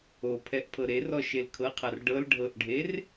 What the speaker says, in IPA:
o pʰ ɛ ʔ pʰ ɤ ɾ e r ɔ ʃ e l kʰ ɤ qʰ a r ɖ ɤ l ɖʱ ɤ ʔ ɖʱ e r

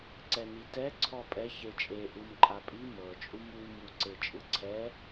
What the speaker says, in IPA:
ǀ ɛ n i t ɛ ǀʰ ɔ pʼ ɛ ç e t͡ʃʼ e ʔ ɯ m ǃʼ a pʼ i m ɤ t͡ʃʼ u m u m u ǀ e t͡ʃʼ ɯ ǀʰ ɛ

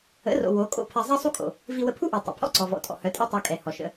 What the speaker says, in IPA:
ə̰˨˦ r o̰˨ w o˨˦ kʼ o̰˧ pʰ ɛ˧ zˤ ɛ˦ sˤ u˦ kʼ o̰˨ | v i˧ w ə˧ pʰ u˦ ʔ e˨ tˤ o̰˨ pʰ ɔ̰˦˨ ǀ ɔ˨ v ɔ̰˨ tʼ ɔ̰˨ h œ˨˦ tʼ e˦ tˤ œ˧ kʼ ɛ˨ h ɔ˨ ʃ ə̰˨

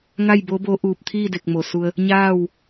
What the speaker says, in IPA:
ŋ a˥˨ j b o˧˥ b o˧˥ ʔ uː˧˩ p̚ t̪ʰ iː˥˨ d e˧˩ k̚ m o˧˩ s u˧ ə̯ | ɲ aː˥˨ w

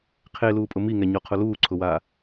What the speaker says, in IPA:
qʰ e l uː pʼ ʊ m i ŋ ɛ ɲ ɔ qʰ ʊ l uː ǀʰ ʊ w aː

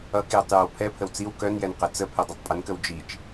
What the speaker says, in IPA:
ʌ k j ə tˤ j œ w pʰ ɛ pʰ ə w t͡s i w k œ n j ɛ n q ɛ t͡s ə pʰ ɛ dˤ i tˤ pʼ ə n k ə w d͡ʒ i t͡ʃ

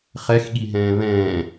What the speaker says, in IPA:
χ ɛ x ɠ i ɦ ɛ̃ː β ɛ̃ː

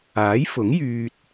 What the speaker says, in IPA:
aː˨˥ j f ʊ˨˥ ŋ j yː˧ t̚

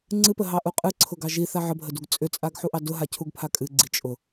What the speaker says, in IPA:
ŋ͡ǀ ɨ p ə ɦ ɑ ʔ u qʼ ɨ ǀʰ ʊ ɡ ɑ ʒ i θ a ʕ ə bʱ ə d u ɡ t͡sʼ ʏ t͡sʼ a ɡ ħ u ʔ ɑ d ʊ ɦ a cʰ u ɡ pʰ a kʼ ɨ ɡ͡ǀ i t͡ʃʼ ʊ

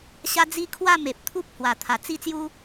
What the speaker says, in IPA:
ɕ a˦ d͡z i˦ kʰ w a˥˧ m e˨ p̚ t̪ʰ u˦ p̚ h w a˨˩ t̪ʰ a˨˩ t͡s i˥˧ t͡s j u˦

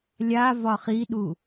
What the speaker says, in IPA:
lʲ a v ɒ χ i ɗ u

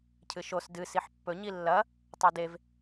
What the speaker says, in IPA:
cʰ ɨ ʃ o s d ɨ s i ħ pː ɵ ɲ i lː ɐ | tˤ u d e v

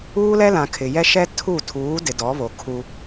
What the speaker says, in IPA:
uː˦ l ɛ˦ l ã˨ kʰ ɪ˨ j ɛ˦ ʃ ɛ˦ tʰ u˦˨ tʰ uː˨˦ d ɪ˨ d ɔ˨˦ β o˨ kʰ u˦

